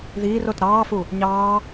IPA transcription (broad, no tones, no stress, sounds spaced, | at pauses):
ð iː r o t ɾ ɑː f u | ɲ ɑː